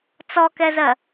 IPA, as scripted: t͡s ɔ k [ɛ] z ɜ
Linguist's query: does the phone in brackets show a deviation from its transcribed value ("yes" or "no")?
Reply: no